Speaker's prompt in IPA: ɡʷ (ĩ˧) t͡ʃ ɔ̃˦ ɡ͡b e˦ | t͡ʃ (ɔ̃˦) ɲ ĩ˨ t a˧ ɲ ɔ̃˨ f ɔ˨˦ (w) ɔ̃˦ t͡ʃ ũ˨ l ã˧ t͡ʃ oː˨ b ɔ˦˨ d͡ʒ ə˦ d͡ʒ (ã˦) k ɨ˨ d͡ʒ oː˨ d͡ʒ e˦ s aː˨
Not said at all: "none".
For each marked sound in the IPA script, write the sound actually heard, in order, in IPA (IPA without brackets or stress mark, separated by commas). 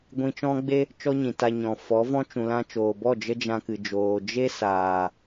ĩ˧, ɔ˦, v, ã˧